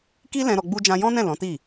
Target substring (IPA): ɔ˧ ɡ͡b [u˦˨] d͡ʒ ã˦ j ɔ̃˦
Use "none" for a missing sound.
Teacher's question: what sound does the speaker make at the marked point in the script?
u˦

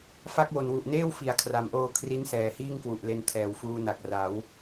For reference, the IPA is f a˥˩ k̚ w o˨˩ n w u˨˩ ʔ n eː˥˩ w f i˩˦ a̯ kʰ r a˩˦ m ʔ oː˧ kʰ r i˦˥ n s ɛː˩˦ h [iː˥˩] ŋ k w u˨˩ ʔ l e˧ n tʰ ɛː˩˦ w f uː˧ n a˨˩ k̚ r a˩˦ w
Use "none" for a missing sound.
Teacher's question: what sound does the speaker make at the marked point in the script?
iː˥˩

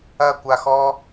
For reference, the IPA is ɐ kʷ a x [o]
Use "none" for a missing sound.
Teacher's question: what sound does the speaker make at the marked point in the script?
ɔ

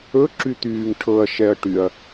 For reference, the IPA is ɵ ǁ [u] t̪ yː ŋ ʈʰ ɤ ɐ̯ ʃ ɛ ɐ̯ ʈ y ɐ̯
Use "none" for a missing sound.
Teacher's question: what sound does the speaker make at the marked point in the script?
y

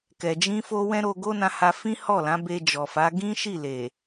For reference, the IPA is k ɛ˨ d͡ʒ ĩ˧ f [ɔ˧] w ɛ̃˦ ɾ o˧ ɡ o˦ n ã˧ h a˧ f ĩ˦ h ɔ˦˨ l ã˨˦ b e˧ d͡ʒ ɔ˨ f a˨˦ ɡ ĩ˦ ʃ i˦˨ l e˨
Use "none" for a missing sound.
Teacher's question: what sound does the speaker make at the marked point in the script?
o˧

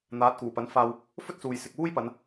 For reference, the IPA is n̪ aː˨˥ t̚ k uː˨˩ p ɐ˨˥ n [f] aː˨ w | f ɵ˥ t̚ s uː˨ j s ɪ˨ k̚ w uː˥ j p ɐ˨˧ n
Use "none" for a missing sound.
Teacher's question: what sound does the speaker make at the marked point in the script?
f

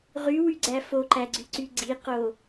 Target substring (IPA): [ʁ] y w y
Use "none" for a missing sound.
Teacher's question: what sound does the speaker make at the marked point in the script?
ʁ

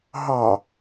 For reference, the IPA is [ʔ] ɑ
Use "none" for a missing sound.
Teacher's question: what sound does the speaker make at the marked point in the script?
ɦ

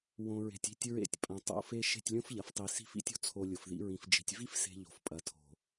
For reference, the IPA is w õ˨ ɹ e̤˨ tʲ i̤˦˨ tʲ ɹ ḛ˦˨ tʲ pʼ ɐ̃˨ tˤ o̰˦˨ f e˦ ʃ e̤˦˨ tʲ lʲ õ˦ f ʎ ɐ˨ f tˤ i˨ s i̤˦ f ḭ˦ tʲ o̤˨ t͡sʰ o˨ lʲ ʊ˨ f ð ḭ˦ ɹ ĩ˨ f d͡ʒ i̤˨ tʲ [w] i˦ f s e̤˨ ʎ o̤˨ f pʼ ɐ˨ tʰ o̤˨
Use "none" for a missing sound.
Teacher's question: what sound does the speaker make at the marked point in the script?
v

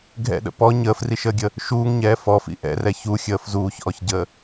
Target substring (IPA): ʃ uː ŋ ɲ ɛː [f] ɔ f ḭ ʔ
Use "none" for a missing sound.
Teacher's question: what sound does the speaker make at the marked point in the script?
f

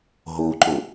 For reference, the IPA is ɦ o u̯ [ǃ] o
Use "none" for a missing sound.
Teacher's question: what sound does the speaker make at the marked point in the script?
ǃ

